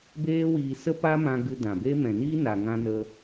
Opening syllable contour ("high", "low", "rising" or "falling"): high